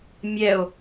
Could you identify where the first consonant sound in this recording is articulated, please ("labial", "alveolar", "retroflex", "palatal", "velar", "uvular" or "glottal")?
labial